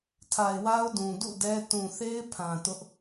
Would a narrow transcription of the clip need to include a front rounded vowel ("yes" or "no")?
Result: no